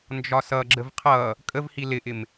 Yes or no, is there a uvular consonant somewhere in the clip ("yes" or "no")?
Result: yes